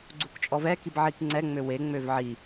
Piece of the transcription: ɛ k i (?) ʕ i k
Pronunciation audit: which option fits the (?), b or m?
b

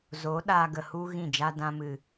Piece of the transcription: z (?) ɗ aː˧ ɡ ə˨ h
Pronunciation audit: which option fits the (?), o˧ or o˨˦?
o˨˦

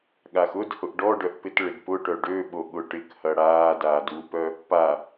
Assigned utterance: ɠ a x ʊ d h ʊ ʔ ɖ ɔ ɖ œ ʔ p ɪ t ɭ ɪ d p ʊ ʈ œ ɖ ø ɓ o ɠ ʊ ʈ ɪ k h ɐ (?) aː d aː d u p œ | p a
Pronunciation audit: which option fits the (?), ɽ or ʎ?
ɽ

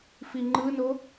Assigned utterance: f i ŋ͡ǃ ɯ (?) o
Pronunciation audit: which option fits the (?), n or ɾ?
n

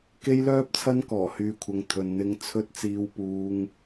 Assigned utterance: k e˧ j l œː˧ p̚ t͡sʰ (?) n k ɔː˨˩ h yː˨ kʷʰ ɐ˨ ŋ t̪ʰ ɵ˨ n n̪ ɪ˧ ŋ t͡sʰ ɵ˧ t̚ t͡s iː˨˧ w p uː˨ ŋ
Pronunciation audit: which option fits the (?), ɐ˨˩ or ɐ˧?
ɐ˧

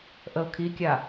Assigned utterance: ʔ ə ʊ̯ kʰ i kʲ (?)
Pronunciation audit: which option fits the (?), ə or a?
a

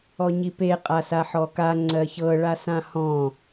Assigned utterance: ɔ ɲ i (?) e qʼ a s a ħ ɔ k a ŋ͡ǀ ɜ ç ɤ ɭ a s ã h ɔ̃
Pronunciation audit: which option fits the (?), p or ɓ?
p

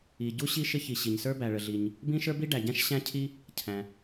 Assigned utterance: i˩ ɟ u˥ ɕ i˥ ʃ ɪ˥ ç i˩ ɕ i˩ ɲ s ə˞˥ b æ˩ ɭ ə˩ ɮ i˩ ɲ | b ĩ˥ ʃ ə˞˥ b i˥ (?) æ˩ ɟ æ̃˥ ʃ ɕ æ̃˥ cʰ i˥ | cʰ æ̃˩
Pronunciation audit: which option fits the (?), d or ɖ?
ɖ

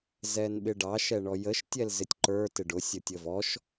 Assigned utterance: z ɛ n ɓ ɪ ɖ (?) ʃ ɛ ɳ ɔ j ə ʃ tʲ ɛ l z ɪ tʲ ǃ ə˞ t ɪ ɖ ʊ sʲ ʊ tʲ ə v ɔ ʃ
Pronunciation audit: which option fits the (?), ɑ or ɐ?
ɑ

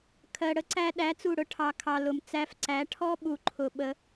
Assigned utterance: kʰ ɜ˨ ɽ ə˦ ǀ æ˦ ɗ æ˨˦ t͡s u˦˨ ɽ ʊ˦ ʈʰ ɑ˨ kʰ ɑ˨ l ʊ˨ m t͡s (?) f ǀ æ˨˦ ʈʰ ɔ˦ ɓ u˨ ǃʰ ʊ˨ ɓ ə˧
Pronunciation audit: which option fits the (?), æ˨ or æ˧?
æ˧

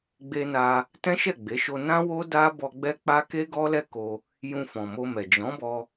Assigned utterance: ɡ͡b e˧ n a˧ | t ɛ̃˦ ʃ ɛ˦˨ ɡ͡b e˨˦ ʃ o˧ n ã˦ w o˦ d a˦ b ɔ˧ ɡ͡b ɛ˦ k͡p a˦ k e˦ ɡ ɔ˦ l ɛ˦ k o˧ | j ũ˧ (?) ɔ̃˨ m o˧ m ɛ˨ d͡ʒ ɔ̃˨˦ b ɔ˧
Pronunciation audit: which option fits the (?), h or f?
f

